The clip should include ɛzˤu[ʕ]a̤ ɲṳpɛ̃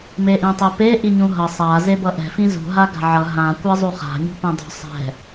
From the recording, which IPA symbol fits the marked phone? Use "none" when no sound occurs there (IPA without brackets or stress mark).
χ